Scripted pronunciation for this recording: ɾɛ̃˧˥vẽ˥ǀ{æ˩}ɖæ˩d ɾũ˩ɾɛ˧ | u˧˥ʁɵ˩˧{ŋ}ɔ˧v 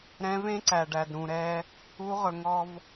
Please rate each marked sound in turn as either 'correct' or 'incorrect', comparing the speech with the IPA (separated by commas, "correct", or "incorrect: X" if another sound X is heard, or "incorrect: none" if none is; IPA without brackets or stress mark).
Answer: correct, correct